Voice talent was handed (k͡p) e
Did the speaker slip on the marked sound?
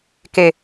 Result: yes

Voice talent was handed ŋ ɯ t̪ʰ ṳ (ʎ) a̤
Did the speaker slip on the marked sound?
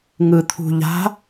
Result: no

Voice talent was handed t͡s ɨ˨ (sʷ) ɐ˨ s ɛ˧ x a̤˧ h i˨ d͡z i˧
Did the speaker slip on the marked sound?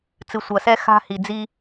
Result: no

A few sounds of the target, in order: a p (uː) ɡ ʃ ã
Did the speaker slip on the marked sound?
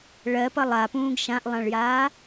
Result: yes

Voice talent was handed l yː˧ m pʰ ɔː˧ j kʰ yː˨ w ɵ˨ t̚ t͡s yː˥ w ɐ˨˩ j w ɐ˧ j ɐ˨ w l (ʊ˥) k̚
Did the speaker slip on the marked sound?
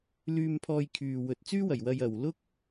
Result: no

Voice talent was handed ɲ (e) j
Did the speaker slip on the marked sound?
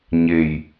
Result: no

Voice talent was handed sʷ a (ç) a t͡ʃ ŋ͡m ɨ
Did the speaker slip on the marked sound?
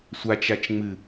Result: yes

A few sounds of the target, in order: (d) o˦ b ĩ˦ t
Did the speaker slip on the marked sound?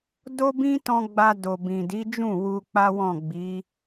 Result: no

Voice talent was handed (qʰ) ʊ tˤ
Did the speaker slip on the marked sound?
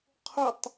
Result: no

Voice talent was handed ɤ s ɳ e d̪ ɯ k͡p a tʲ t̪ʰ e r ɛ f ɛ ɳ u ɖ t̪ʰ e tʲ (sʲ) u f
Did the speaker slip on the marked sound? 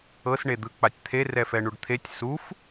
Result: yes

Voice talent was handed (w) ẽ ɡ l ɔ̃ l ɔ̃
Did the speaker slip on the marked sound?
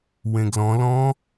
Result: no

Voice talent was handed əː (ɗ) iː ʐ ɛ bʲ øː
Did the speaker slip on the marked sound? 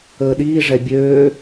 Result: no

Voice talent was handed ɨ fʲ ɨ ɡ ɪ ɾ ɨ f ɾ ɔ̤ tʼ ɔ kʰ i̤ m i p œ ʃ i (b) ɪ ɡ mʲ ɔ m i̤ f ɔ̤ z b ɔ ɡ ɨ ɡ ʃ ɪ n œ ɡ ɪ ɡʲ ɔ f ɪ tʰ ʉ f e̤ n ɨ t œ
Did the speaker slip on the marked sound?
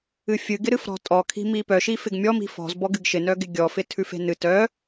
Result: yes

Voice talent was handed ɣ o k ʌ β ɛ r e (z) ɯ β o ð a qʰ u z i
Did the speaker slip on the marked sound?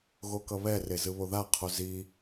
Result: no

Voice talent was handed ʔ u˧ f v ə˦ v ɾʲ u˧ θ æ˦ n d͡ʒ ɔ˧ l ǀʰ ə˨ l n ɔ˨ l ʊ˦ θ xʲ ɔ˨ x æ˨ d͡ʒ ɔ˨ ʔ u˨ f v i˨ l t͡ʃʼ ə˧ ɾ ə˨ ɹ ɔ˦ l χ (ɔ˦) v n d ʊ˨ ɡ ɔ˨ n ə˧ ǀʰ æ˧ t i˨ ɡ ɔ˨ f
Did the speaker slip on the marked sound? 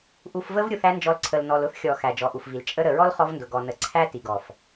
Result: yes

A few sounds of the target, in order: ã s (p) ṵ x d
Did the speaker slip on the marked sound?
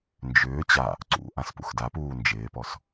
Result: no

